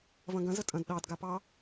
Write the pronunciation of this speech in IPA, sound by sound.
vɐ̃ɡɐ̃ zətʼɐ̃d ɗɑd ɡapɑ

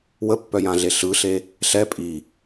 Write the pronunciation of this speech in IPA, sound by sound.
wəpːœjãɮe ɬɯɬe | ɬɛ pʼi

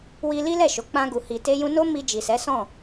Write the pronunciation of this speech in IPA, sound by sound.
wi˧li˦lɛ˦˨ʃo˨ k͡pã˧ɡu˨hi˨ te˧jũ˧no˦ mi˧d͡ʒi˨sɛ˨˦ sɔ̃˦˨

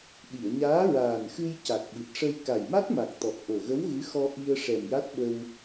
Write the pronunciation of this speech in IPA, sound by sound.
ɗi˨˩˨ə̯ɲaː˧˥ ɹaː˨˩nxɨ˧j ca˨˩k̚ɓɨ˨˩t̚ʂə˧j ka˨˩jma˦˥t̚ma˨˩k̚t̪ɔ˨˩k̚ ʔo˨˩ ɣə˧˥wɣɨ˧˥xɔ˧ ʔi˧ə̯ ʂɛ˨˩mja˦˥t̚ɓə˧w

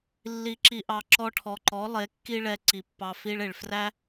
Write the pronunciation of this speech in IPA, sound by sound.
lːi˨ǁi˨ʔɑ˨ ǁɔ˧ʈʰɔ˨ǃɔ˨˦ lˠe˨˦kːi˦ɭɛ˧ǀi˨ pːɑ˧fi˦ɭe˨ɭ fræ˦

